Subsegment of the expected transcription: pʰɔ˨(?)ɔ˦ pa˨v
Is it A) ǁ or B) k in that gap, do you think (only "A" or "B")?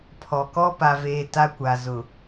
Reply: B